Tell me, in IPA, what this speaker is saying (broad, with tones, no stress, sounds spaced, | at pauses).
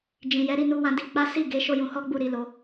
d͡ʒ ĩ˨ j ɛ˨˦ ɾ i˧ n u˧ w ã˧ d i˧ k͡p a˦ s i˦˨ ɡ e˨˦ ʃ o˦ j ũ˧ h ɔ˦ ɡ͡b u˦˨ ɾ i˧ l o˧